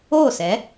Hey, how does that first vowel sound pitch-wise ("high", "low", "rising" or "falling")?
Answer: falling